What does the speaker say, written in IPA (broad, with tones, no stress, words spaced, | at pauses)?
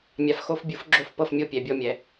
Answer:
mʲa˩fxo˧˩f bʲu˨˩˦fɡ͡ǁo˧˩fpɤ˧˩f mʲo˧˩pʲɛ˩bʲɔ˧˩mʲɛ˩